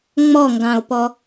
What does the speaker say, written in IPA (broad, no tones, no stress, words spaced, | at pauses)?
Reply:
ŋ͡mɔŋɡɑ̃o̯pɔ